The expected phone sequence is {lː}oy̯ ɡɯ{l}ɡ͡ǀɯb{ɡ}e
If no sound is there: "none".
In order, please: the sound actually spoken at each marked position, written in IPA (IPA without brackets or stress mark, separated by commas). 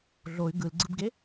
ɮ, l, ɡ